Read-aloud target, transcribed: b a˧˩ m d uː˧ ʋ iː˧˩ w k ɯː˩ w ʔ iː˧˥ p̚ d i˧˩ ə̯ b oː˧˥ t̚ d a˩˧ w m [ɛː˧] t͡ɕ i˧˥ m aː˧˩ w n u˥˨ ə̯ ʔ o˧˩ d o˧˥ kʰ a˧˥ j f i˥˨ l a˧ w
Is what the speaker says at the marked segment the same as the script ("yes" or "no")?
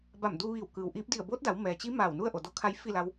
no